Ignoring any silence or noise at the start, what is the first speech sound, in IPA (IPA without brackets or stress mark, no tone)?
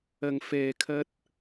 ɐ